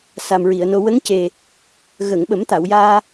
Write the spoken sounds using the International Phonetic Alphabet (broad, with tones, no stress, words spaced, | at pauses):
sa˨˩mɹi˨˩˨ə̯no˧ wə˧˥ŋce˨˩ | ɣəː˨˩˨ŋɓə˨˩˦mt̪a˨˩˨wjaː˧